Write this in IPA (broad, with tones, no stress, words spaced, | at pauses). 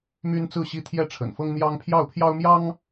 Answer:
my˦nt͡sɹ̩˥˨ɕi˥˨ t̪ʰjɛ˥˨ʈ͡ʂʰə̰˨˩nfɤ˦ŋn̪jɑ˦ŋ pʰjɑ˥˨ʊ̯pʰjɑ˦ʊ̯mjɑ˦ŋ